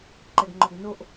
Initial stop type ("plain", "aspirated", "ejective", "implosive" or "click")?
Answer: click